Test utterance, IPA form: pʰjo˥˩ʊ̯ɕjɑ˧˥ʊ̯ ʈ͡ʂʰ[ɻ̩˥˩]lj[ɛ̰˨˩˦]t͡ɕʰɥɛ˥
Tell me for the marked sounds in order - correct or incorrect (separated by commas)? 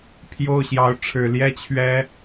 incorrect, incorrect